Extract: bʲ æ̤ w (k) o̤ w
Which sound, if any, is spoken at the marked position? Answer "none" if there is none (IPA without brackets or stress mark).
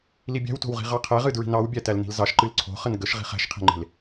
t